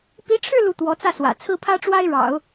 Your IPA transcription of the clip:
p i˧˥ ʈ͡ʂʰ ɻ̩˥˧ l u˥˩ t̪ w ɔ˧˥ t͡s ä˥˩ s w ä̰˨˩ t͡sʰ ɹ̩˥ pʰ ä˥ ʈ͡ʂ w a˥ ɪ̯ ɻ ɑ̰˨˩˦ ʊ̯

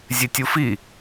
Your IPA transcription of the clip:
zʲ e tʲ u f i

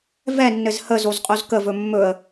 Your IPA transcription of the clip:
v ɛ nː ɘ z h ə z o z qʼ o z k ə v ɵ mː ɵ ə̯

